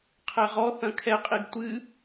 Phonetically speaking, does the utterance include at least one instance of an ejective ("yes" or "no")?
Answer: yes